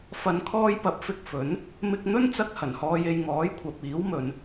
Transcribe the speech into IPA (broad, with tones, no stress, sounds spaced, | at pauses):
f ɐ˨˧ n kʰ ɔː˧ j p ɐ˨˥ p̚ f ɪ˧ k̚ f ɵ˨˥ n | m ɪ˧ k̚ n̪ ɵ˥ n t͡s ɐ˧ k̚ h ɐ˨˩ n h ɔː˧ j e˧ j ŋ ɔː˨˥ j kʷʰ ɐ˨ p̚ iː˨˥ w m ɵ˨˧ n